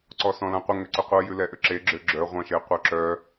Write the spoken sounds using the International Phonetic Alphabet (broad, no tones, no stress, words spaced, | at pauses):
ǀɔsɔ̃lãqʷə ŋʏǀʏqʷə jʉlɛʔʏǁe ɡ͡ǁʏɡ͡ǁœ ʁʷãʃeqʷœǁœ